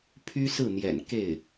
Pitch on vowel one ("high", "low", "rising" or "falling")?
high